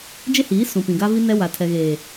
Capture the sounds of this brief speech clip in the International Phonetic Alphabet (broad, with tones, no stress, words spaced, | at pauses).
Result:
d͡ʒe˦hiː˨˦ sũ˨pĩ˨ ɡa˦vi˦nɛ˦wa˨ tʰɛ˨ɣeː˨